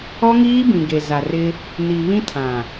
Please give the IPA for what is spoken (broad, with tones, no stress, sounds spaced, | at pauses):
ɔ˦ ŋ iː˦ b ĩ˨ ɡ e˨ z a˨ r ɪ˦ | n i˨ β ĩ˦ tʰ ã˨